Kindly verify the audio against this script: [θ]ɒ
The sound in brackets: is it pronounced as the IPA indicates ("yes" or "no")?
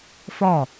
no